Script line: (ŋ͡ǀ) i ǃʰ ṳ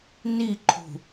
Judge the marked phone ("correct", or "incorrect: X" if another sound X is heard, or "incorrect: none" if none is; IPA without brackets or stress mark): incorrect: n